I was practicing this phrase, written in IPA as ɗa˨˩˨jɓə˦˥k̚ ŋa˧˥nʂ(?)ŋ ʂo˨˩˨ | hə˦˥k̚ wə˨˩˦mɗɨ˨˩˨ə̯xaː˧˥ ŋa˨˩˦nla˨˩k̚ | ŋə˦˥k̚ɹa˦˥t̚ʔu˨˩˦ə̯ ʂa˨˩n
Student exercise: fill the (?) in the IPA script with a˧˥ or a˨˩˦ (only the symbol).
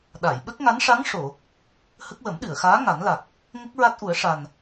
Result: a˧˥